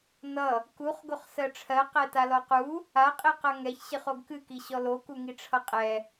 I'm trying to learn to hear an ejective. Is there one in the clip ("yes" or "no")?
yes